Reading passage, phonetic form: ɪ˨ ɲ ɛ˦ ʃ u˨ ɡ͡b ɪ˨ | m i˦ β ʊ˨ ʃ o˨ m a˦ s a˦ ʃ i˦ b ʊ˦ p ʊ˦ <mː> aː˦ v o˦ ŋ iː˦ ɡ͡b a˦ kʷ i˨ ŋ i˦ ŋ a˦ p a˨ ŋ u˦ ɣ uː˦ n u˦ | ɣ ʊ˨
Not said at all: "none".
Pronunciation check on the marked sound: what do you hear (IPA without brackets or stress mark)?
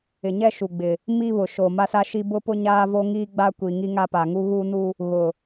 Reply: ɲ